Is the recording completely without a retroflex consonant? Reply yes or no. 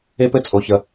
yes